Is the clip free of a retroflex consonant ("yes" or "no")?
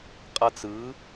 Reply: yes